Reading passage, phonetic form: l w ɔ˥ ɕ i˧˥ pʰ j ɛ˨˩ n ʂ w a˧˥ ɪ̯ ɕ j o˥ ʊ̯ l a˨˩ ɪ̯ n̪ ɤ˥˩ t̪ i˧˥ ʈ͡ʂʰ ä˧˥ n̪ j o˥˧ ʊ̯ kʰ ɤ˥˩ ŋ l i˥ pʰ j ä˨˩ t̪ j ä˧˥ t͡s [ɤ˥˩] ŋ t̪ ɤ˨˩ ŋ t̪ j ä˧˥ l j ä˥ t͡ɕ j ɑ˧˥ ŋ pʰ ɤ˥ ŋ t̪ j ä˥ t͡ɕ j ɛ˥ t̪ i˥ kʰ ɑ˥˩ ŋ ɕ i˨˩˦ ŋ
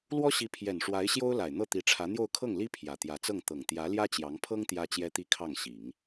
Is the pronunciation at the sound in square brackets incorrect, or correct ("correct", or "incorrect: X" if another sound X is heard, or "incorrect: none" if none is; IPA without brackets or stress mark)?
correct